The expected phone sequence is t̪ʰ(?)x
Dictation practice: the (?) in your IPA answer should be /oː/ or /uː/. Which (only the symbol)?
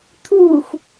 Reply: uː